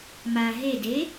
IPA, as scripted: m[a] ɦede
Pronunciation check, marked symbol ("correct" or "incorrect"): correct